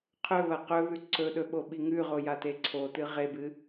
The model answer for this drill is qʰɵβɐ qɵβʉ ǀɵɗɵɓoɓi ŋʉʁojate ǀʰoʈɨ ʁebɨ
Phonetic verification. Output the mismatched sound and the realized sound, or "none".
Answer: ʈ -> t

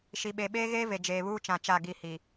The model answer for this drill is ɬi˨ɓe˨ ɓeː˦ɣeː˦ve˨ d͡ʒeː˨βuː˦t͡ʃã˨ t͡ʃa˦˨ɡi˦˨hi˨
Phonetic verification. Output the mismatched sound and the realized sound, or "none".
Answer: ɬ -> ʃ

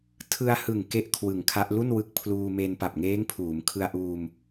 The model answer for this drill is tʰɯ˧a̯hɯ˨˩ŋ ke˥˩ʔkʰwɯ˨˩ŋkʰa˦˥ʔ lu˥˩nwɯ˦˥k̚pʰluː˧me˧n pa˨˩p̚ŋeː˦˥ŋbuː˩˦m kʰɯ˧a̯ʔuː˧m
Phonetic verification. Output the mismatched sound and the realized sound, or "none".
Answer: b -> pʰ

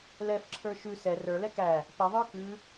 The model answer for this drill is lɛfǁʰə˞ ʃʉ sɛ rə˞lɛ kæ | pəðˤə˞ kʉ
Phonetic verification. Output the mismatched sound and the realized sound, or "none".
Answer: none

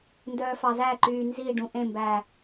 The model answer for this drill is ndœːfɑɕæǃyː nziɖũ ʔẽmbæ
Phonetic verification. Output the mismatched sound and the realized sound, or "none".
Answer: ɕ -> z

